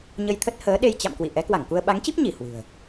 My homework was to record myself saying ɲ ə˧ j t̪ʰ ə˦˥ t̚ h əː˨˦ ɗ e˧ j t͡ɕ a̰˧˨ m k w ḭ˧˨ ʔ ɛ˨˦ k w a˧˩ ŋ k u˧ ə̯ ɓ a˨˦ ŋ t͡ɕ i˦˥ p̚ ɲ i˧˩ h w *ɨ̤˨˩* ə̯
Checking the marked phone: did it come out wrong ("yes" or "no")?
no